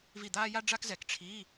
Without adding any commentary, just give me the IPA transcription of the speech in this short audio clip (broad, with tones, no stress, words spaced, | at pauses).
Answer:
vi˦˨d̪aː˥ ja˥ɖ͡ʐa˥kzɛ˧˩˧k ʈ͡ʂʰi˧˥˧